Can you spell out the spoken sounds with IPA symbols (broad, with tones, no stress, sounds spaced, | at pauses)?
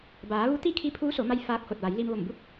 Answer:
b aː˩˧ ʋ u˧˥ t̪ i˥˨ kʰ i˧˥ pʰ uː˧˥ s o˩˧ m a˧ j f aː˧ k̚ h o˧˩ t̚ ʋ a˩˧ j l i˧ m ʋ o˧˩ m b u˥˨ k̚